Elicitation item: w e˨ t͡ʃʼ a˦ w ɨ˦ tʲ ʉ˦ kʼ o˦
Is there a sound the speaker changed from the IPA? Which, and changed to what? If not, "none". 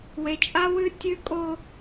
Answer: none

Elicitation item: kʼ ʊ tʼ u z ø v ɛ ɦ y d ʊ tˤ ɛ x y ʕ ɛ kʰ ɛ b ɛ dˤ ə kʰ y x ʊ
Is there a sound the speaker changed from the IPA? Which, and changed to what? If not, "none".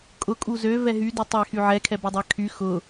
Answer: tʼ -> kʼ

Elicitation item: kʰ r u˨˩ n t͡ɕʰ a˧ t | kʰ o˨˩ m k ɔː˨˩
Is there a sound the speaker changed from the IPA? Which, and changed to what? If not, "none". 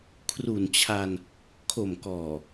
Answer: t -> n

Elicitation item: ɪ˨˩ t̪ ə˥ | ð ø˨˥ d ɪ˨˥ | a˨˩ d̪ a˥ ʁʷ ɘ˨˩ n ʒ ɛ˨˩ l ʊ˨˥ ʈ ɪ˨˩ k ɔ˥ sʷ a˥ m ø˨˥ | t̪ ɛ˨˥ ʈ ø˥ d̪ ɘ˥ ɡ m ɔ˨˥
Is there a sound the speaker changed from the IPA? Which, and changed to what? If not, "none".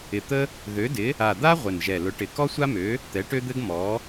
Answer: none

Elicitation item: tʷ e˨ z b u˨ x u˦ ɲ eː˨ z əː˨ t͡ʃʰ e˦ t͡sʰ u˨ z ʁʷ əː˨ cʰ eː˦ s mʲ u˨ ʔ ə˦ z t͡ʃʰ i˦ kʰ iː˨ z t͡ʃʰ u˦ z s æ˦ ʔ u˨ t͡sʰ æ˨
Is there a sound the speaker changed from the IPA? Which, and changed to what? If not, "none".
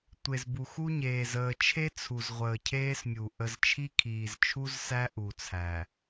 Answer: none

